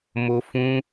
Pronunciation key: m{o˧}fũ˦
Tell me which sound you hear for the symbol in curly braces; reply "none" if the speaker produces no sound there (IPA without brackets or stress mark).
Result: o˧